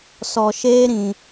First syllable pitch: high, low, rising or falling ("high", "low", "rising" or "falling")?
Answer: low